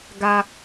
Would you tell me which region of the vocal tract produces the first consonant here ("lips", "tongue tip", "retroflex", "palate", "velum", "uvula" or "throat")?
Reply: velum